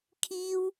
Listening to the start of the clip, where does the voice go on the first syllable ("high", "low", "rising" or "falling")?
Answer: high